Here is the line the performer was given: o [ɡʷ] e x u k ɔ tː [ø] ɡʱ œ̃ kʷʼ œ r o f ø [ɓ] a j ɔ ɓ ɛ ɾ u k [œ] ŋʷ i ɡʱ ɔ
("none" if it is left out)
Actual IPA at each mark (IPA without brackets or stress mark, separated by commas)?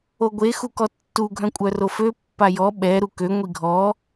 ɡʷ, u, pː, ø